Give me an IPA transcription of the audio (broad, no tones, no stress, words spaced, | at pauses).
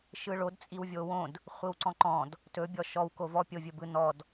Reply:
ʃɯɭod t͡sʼiwvʲowõd | χʷiwǀɔ̃ǃɔ̃d | tɵ bʲɔʃɔw kovɔ pʲovʲɵbɯnɔd